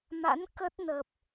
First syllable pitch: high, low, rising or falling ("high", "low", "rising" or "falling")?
rising